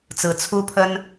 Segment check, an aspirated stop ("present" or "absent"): present